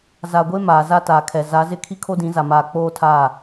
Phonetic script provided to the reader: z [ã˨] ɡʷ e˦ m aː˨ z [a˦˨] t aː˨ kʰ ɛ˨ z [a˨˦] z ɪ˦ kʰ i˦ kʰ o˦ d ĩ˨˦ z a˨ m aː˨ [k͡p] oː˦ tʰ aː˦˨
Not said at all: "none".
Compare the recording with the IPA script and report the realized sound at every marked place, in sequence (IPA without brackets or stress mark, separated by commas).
a˨, a˦, a˨˦, k͡p